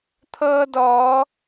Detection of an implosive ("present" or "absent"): absent